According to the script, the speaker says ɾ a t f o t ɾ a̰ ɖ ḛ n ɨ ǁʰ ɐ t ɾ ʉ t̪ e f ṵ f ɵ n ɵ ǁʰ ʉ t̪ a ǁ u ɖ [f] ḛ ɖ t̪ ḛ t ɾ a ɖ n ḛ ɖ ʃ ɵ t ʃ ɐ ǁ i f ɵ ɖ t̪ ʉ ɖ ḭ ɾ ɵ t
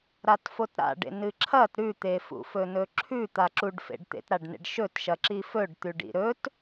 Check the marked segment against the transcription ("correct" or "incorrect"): correct